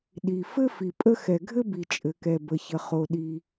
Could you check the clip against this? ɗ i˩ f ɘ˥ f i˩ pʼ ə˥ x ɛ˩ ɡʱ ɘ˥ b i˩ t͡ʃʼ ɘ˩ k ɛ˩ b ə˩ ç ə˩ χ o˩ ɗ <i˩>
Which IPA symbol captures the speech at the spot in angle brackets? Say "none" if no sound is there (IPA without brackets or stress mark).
i˩